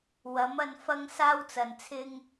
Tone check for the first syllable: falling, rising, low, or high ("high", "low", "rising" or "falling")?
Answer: rising